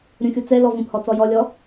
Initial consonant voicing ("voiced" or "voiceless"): voiced